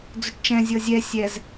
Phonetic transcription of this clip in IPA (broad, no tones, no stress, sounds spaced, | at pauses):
d͡z ɵ ʈ t͡ʃ ɛ̃ zʲ ɤ zʲ ɛ sʲ ɛ z